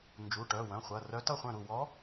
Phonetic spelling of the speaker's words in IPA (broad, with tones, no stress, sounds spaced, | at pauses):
n d͡ʒ u˩˧˩ ʈ œ˩˧˩ w œ̃˩˧˩ χʷ ɐ˩˧˩ r œ˧˥ t ʌ˥˩ χʷ œ̃˥˩ ɾ u˥˩ w ɔ˧˥